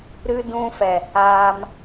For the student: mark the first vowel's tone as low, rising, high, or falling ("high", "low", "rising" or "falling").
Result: high